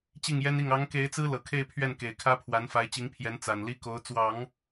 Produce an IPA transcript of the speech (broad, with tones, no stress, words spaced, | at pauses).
t͡ɕi˥˩ŋjɛ˥ni˥˩ŋ ɑ˧˥ŋke˧˥ɪ̯t͡sɹ̩˥ lɤ˨˩kʰe˥˧ɪ̯pʰɥɛ˥˩n ke˨˩ɪ̯kʰä˥pʰwa˧˥n fa˧˥ɪ̯t͡ɕi˧˥ŋ pʰjɛ˧˥n t͡sa˨˩nli˥ko˧˥ʊ̯ t͡swɑ˨˩˦ŋ